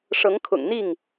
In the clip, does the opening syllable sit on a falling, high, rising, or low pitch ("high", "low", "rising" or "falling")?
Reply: rising